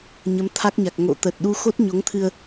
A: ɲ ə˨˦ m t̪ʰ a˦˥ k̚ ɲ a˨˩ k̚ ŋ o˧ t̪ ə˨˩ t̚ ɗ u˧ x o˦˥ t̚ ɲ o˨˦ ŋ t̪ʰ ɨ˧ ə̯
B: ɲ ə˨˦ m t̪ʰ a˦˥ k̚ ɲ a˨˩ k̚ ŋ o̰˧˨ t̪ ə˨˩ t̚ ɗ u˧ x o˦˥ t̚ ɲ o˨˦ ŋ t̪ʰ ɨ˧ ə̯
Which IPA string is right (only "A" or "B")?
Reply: B